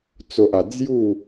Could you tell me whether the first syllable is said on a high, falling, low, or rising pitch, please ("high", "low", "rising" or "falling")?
low